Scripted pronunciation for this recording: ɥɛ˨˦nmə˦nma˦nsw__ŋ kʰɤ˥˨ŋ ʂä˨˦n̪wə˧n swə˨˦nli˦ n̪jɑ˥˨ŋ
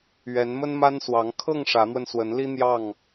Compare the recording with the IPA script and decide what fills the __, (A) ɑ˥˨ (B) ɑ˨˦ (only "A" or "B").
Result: B